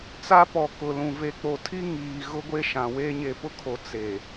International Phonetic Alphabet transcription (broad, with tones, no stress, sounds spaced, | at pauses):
t͡s a˦ p ɔ˨ k ʊ˨ l ũ˨ v e˨ k͡p o˨ tʰ i˦ ŋ iː˨ ɣ ʊ˦ ɡʷ e˦ ʃ ã˨ w eː˦ ɲ e˨ p ʊ˦ kʰ o˨ t͡s e˨